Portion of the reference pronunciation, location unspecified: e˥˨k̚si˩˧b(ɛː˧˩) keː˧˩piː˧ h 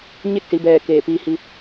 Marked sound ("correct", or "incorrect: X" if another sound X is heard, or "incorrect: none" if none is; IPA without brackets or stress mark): correct